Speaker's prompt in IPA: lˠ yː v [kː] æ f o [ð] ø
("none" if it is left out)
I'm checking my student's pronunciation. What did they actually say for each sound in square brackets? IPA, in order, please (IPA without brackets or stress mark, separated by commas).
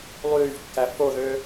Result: kː, ð